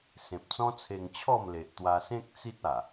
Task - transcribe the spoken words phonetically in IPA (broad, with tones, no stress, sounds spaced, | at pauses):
s ẽ˨ p̚ t͡s ɔ̃˦ t͡sʰ e˧ ŋ t͡ɕʰ ɔ˥˧ m l e˨ ʔ t̪ w a˧ s ẽ˦ k̚ t͡s i˦ t̚ a˨˩